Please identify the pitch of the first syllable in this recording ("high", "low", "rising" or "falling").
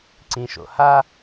low